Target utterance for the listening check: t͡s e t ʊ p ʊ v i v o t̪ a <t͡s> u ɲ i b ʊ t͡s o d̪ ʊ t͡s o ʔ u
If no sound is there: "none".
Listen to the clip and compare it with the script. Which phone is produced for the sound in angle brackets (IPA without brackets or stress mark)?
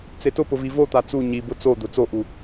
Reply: t͡s